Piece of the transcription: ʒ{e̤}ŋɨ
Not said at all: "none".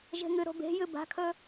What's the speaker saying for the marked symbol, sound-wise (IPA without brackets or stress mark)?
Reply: e̤